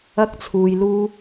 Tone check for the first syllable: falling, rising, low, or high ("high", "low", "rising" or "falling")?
high